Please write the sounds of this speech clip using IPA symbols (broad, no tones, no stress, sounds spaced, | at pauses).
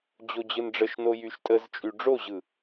d͡ʑ o d͡ʑ ɯ n ɖ͡ʐ ə ʃ n o j y ʃ tʼ ə z t͡ʃʼ y ɖ͡ʐ o ʑ ɯ